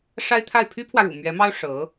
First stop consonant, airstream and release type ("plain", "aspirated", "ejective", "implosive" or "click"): aspirated